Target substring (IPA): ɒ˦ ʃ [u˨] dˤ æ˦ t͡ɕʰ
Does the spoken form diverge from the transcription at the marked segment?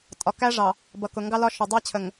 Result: yes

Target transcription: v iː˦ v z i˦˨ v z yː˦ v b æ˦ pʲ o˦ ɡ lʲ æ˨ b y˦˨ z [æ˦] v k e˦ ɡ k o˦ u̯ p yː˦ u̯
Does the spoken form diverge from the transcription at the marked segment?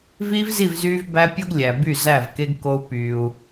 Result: yes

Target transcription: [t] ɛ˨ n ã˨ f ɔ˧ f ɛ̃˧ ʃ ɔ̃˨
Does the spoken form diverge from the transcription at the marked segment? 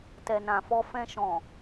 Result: no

